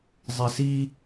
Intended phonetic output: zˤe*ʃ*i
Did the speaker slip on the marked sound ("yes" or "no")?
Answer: yes